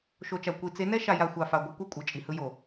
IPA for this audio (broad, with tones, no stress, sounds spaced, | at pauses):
ʃ o˨ t͡ʃ a˨ kʷ i˨ t͡s e˨˦ n ɛ˦ ʃ a˨ j a˨ xʷ a˨ f a˨ ɡʷ ʌ˦ kʷ ɛ˦ kʷʼ ɯ˨ t͡ʃʼ i˨ h ɯ˦ j o˨